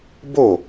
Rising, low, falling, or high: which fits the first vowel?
falling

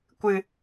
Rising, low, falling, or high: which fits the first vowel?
low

